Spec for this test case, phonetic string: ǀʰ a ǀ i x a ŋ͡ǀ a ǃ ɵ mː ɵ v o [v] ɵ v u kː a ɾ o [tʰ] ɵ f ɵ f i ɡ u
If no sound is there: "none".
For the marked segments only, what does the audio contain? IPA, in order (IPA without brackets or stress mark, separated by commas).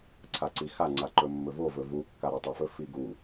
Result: v, tˤ